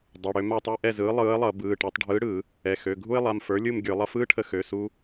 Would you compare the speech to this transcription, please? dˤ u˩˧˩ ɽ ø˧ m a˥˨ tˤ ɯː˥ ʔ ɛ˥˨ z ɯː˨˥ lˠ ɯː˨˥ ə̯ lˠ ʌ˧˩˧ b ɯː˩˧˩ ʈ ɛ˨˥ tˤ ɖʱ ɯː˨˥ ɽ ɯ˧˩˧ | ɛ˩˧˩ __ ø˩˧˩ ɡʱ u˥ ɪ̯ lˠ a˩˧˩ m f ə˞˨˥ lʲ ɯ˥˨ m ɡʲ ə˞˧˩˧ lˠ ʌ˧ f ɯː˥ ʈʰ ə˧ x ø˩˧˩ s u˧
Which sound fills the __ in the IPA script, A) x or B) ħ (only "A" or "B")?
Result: A